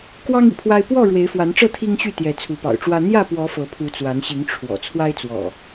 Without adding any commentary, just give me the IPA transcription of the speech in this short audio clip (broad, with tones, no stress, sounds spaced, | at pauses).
k w ɑ˦ ŋ ḭ˨˩ pʰ w a˦ ɪ̯ p w ɔ˥˨ ɻ w e˨˦ ɪ̯ f w a˨˦ n ʈ͡ʂ ɤ˥˨ t̪ʰ i˦ ŋ ɕ y˥˨ t̪ j ɛ˨˦ t͡sʰ u˨˦ p ɑ̰˨˩ ʊ̯ ʈ͡ʂ w ä˦ n̪ j ä˥˨ p w ɔ˨˦ f ɤ˨˦ pʰ u˨˦ t͡s w a˨˦ n ɕ i˨˦ ŋ ʈ͡ʂʰ w ɔ̰˨˩ t͡sʰ w a˦ ɪ̯ t͡s w ɔ̰˨˩